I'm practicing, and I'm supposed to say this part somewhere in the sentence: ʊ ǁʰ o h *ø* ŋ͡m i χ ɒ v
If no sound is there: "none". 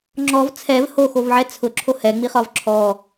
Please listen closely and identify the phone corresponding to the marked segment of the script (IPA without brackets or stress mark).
ɛ